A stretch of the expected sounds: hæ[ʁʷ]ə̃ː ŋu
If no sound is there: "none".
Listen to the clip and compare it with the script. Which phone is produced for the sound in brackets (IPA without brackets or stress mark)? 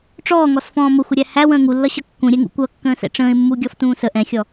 w